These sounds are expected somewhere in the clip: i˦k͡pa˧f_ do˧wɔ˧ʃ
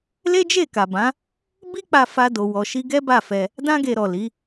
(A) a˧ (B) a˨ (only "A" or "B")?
A